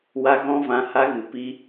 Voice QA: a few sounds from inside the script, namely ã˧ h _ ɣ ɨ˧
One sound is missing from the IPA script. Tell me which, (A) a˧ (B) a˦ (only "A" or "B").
B